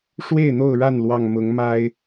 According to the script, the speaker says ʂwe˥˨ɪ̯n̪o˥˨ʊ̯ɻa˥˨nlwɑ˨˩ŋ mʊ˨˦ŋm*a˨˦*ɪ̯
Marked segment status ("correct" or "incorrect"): incorrect